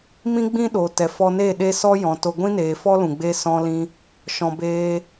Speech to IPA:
mĩ˦ɡ͡bĩ˦ɗo˨ tɛ˨fɔ˧ne˦˨ ɗe˦sɔ˦ jɔ̃˨to˧ ɡʷĩ˦neː˨fɔ˦ lũ˨ɡ͡be˦sɔ̃˦lĩ˦ | ʃɔ̃˧beː˦

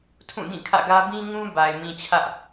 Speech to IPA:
tʰũ˦˨dĩ˦˨kʰä̰˦˨ɡä˦ bĩ˦ŋũ˦ ba˨ɪ̯ mĩ˨t͡ɕʰä˦ʔ

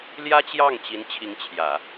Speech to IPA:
ljä˥t͡ɕjɑ˥˩ŋt͡ɕi˧˥n t͡ɕʰi˧˥ŋt͡ɕʰjä˨˩˦

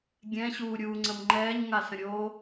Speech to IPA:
ɡʲɛ̃ɕuːɾʲuːŋ͡ǀəm ŋ͡ǃɛːɲŋasə̃ɾʲoː

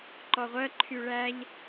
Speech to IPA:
ǃɔʁʷɜ ǃʰyɭæʎ

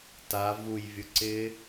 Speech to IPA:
ta vujvʲʊ ǀɪ

